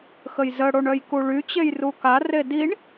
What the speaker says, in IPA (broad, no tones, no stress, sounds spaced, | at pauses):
x ə j z ə ɽ o ɳ œ j k u ɭ y t͡ɕ e j r u k a r e d i ɳ